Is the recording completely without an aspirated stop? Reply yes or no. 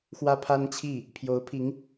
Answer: no